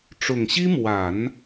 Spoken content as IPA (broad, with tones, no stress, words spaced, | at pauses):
ʈ͡ʂʊ˨˩ŋɕi˥mwa˨˩˦n